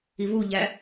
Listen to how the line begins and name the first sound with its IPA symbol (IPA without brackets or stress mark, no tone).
i